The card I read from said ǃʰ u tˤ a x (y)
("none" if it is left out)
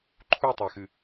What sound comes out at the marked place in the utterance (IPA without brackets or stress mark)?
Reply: ɨ